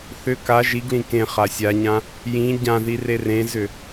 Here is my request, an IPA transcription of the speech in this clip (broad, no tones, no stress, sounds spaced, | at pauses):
θ ʏ k a ʒ i ɡ l ĩ k ẽ χ a sʲ a ɲ ã | j ĩ ɟ ã ð i r e r ẽ z ʏ